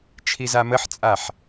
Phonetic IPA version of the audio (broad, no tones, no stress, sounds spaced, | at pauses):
t͡ʃʰ i z a m ə ħ t͡sʼ a ħ